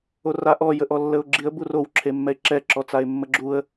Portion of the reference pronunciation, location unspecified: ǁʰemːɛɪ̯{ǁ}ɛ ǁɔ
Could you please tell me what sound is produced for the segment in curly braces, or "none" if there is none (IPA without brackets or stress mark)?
ǁ